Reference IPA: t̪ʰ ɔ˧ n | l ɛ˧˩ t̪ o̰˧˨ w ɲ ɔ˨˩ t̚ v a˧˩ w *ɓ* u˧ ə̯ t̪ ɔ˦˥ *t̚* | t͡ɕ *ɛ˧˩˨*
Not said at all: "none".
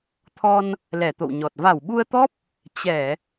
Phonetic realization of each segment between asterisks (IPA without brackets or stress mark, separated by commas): ɓ, p̚, ɛ˧˩˨